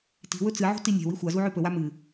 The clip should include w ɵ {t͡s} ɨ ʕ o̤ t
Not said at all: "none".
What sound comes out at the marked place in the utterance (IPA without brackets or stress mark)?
t͡s